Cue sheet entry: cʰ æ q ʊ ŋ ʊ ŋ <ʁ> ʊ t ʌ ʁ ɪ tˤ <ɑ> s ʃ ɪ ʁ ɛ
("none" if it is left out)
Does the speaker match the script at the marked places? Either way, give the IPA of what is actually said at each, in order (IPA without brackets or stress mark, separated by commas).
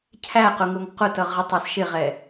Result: q, ɑ